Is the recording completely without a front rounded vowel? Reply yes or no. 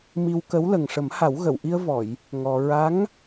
yes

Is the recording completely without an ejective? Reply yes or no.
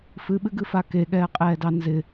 no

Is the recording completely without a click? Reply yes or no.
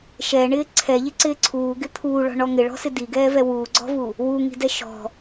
no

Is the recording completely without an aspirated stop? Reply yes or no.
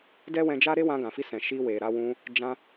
yes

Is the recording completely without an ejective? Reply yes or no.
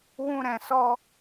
yes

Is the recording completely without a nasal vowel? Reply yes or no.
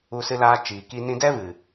no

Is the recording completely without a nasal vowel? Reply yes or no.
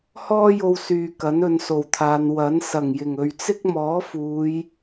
yes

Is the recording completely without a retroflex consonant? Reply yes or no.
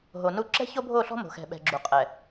yes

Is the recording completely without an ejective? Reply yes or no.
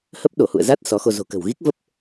yes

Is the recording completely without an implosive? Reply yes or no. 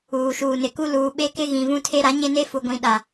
no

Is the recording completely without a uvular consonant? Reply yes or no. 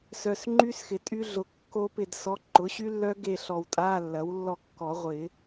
no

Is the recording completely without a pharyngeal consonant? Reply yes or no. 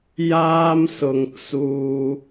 yes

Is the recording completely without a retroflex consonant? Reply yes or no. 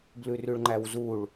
no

